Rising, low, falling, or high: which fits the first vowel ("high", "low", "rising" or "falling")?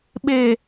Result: low